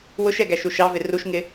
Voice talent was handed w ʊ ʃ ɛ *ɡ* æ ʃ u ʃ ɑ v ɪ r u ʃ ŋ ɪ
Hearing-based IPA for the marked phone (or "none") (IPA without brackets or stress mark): ɡ